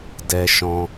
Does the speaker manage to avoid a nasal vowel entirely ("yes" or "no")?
no